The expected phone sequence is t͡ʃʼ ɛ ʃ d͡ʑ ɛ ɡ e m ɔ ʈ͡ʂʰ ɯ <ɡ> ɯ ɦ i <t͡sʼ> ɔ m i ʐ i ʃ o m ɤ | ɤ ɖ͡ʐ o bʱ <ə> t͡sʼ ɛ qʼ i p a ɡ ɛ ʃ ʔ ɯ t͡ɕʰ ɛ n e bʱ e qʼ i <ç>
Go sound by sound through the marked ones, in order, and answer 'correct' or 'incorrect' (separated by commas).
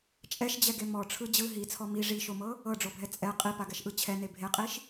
incorrect, incorrect, incorrect, incorrect